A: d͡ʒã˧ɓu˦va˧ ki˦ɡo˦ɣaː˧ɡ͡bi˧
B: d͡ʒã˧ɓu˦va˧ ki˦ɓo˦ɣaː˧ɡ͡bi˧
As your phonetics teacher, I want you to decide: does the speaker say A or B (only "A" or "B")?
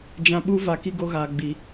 A